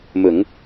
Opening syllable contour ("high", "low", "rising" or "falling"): low